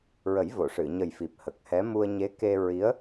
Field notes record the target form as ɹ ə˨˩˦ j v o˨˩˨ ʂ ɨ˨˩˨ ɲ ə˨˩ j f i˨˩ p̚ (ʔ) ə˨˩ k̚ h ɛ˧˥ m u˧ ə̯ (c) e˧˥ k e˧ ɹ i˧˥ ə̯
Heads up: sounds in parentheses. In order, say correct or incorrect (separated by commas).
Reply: incorrect, incorrect